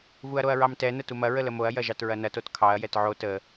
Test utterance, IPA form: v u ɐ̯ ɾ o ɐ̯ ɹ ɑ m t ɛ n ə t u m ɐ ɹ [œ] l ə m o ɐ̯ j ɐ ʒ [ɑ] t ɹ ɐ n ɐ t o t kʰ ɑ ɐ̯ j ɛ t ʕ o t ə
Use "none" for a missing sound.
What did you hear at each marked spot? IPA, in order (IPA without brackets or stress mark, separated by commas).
ə, ɑ